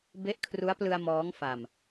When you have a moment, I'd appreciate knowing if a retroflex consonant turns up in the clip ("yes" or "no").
no